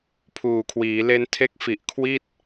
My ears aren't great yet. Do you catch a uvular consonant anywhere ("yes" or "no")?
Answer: no